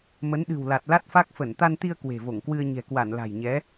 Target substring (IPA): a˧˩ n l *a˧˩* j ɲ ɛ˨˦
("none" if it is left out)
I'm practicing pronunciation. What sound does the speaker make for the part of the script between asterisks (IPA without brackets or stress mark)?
a̤˨˩